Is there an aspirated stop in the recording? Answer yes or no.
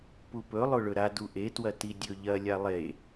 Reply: no